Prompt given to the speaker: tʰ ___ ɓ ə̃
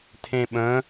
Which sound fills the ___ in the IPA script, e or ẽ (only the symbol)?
ẽ